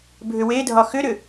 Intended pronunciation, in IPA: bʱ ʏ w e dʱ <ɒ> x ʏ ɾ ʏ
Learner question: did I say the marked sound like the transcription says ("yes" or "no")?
yes